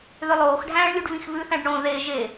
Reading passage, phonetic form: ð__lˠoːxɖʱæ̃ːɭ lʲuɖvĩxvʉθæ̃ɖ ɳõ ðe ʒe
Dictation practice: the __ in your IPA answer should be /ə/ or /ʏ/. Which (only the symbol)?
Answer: ʏ